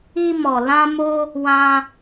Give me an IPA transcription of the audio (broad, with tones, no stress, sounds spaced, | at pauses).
i˧ m ɔ˨ l ã˧ m o˧ | w ã˧